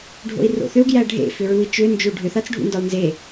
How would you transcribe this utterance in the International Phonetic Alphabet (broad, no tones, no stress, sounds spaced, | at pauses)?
ɖʱ o̰ i̯ r o̰ θ ʏ u̯ ɡ j æ ɖʱ ḛ f ʏ ɹ u i̯ t͡ʃ ʏ n d͡ʒ ʏ u̯ ɖʱ ʏ θ a t͡s ɖʱ ṵ n d ɒ u̯ n z e